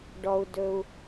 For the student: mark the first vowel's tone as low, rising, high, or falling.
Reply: low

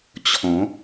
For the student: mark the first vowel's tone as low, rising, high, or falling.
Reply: rising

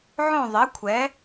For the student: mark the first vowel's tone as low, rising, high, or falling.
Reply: falling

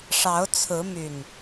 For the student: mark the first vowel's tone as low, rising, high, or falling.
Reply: rising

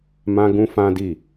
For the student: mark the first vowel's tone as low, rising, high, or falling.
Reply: high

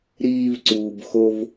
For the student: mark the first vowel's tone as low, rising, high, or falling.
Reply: high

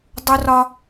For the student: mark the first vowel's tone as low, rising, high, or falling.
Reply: high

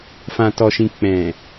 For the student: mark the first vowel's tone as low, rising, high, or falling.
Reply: low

